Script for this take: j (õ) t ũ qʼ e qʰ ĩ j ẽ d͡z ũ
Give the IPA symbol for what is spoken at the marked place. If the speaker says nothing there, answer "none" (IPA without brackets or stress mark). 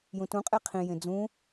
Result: ũ